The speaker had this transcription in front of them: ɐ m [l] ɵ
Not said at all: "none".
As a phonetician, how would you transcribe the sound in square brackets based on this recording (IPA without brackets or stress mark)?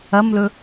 l